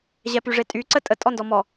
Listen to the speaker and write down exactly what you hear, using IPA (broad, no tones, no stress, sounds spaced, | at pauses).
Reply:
ʑ ɛ p y ʐ e tʼ y ǀ ə tʼ ə tʼ ɔ n d ɔ m ɔ